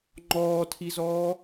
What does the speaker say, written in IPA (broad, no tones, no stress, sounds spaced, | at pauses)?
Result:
ŋ͡ǃ ɔː tʰ i z ɔː